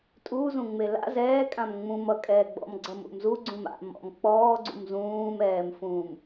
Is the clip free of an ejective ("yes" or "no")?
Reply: no